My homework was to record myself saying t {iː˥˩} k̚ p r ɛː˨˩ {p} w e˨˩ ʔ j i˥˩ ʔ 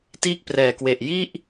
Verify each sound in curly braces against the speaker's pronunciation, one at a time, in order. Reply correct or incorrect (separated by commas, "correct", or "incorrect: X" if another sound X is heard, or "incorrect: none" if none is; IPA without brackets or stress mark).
correct, incorrect: k